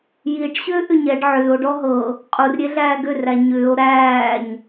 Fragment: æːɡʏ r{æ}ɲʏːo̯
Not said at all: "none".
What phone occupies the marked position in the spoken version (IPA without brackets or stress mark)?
æ